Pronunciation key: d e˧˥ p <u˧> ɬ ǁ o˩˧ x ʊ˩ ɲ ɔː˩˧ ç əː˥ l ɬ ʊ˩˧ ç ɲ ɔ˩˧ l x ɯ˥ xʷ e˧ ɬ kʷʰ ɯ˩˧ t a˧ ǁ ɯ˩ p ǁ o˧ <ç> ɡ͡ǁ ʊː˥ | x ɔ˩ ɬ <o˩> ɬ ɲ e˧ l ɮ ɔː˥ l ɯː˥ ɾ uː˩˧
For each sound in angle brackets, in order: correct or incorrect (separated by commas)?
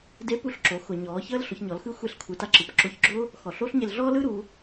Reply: correct, correct, incorrect